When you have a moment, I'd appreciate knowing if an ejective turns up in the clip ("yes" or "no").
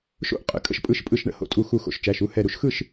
yes